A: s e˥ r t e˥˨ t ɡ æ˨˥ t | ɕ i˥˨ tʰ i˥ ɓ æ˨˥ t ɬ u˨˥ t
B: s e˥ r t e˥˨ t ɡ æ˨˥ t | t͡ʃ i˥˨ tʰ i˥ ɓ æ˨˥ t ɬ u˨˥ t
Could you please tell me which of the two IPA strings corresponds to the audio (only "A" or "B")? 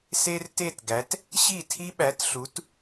A